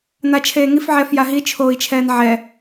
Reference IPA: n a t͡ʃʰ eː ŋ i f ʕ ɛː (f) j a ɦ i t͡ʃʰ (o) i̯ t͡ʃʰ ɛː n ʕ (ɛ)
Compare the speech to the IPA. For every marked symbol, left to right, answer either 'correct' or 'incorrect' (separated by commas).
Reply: correct, incorrect, correct